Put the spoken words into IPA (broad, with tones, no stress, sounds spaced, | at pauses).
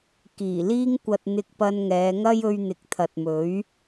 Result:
k iː˨˩ l iː˥ ŋ kʷ ɐ˧ t̚ n̪ ɪ˧ k̚ p ɐ˧ n ŋ ɛː˨˧ ŋ ɐ˥ j ɵ˧ ɥ n̪ ɪ˨ k̚ t̪ʰ ɐ˨ t̚ m ɵ˨˥ ɥ